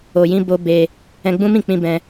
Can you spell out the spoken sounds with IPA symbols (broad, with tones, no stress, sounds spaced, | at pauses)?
o˧ j ĩ˦ b o˦ b e˧ | ɛ̃˧ ɡ͡b ũ˦ m ĩ˦˨ k͡p ĩ˧ b ɛ̃˧